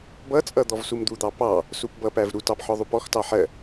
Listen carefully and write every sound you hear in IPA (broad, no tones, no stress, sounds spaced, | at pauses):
b ʌ t͡sʼ ʌ d̪ ɔ v s u m d̪ u d̪ ɑ p ɑ | s u p b ʌ p æ v ɾ u t ɑ p ħ ɔ ðˤ u p ɔ x t ɑ ħ ɜ